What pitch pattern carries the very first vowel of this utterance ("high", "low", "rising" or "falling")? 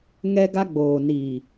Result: high